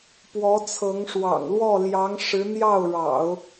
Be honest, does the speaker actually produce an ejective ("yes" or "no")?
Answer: no